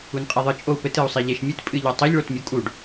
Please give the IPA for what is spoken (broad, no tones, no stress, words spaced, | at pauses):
unqʼiðˤɨ t͡ʃʼou̯pɘt ɨu̯sˤiʎeʃmʲɨt pʼɨʎotˤoʎ ɭotmʲukʼuɖ